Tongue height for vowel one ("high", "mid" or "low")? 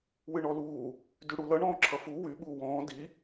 high